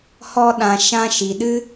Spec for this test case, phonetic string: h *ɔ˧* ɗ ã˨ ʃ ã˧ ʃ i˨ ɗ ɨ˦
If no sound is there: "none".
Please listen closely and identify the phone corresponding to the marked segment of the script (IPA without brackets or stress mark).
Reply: ɔ˧